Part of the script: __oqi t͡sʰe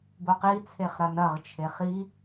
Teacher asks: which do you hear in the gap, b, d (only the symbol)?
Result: b